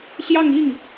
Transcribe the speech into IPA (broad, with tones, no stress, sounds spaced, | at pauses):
ɕ j ɑ˥˧ ŋ i˥˩ ŋ